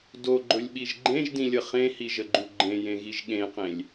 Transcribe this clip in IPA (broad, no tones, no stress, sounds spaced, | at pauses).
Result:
d o ɡ͡ǃ ɵ lʲ ɓ i ʒ ɡ͡ǃ ẽ ʒ d ĩ lʲ ə χ ẽ h i ʒ ə ɡ͡ǃ u ɡ͡ǃ ẽ j ẽ ɣ i ʒ ɠ ẽ q ẽ lʲ